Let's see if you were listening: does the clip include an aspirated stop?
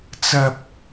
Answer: no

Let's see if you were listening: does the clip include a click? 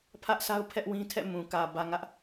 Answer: no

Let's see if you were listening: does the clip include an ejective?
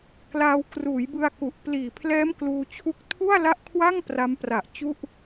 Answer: no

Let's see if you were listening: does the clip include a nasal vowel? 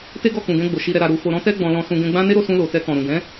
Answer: yes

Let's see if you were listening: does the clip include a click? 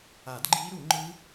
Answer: yes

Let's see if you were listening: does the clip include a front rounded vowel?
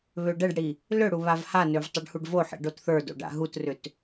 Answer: yes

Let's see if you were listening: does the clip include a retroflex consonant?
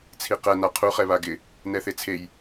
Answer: no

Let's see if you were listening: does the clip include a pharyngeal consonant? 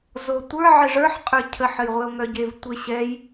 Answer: yes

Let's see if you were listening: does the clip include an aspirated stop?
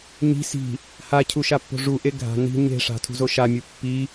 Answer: yes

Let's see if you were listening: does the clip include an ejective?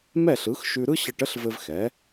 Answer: no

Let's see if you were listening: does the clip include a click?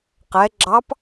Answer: yes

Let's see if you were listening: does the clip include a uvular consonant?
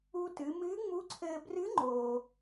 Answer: no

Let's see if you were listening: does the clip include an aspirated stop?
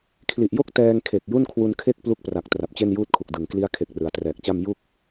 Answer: yes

